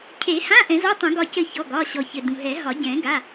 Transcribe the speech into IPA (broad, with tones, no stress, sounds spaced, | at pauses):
cʰ e˨˩˦ h ã˧˥˧ ʔ ɛ̃˨˩˦ z ɔ˧˥˧ tˤ ũ˨˩˦ ɡ ɒ˧˩ c ɘ˧˩ ç ɔ˩˧˩ ɡ ɒ˩˧˩ ɕ ɔ˩ ç ɘ˩ d ũ˩ ɦ ɛ˨˩˦ ɦ ɒ˨˩˦ ɟ ɛ̃˨˩˦ ɡ a˩˧˩